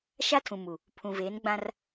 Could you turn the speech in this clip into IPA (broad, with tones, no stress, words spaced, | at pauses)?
ʃa˦tʰũ˨ mu˨ | pʰũ˨veː˨˦n ɡ͡bã˦r